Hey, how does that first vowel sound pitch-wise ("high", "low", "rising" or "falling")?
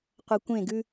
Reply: low